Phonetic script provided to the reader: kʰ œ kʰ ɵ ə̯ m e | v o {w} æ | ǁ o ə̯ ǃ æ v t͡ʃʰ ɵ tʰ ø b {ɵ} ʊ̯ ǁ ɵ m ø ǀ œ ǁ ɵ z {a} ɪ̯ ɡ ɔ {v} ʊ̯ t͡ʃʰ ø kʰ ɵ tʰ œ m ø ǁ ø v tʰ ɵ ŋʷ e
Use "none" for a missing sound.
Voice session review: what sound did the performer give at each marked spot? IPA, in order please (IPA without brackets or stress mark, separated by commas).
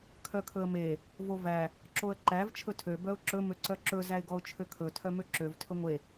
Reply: v, œ, æ, none